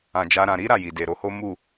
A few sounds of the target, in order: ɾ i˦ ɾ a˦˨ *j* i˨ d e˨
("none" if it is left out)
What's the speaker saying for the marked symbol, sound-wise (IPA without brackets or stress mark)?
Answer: j